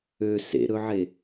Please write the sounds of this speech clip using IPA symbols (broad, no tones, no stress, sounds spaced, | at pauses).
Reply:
ø s ḛ ɾ ɵ ʕ e